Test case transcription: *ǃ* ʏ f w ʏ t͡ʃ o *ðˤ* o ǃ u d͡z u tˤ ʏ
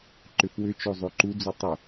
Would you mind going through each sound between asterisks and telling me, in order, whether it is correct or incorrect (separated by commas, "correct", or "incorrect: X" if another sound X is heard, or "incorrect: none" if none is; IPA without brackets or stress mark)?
correct, incorrect: zˤ